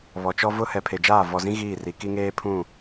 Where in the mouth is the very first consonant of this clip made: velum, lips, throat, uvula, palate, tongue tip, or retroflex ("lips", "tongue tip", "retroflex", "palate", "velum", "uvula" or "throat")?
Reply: lips